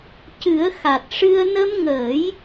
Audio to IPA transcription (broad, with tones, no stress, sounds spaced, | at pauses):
c ɨ˨˩˦ ə̯ x a˨˩ t̚ ʂ ɨ˧ ə̯ n ə˧ m ŋ əː˨˩˦ j